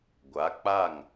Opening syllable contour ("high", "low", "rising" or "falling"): rising